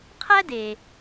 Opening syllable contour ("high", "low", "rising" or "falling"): high